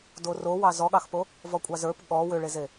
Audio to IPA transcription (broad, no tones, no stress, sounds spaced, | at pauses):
d o r o w ɑ z ɔ ɠ ɑ x p o | v ɔ kʷʼ ɑ z ə˞ p ɠ ɔ w ʏ ɭ e z e